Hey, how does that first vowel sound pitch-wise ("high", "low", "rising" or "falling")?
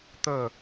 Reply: falling